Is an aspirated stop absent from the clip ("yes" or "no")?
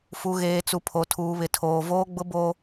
no